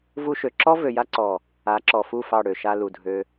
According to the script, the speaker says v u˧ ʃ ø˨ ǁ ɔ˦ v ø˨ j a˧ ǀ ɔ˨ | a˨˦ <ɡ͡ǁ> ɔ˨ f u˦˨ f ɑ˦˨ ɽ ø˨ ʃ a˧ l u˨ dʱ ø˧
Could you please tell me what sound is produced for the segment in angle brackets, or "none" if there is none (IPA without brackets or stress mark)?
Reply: ǁ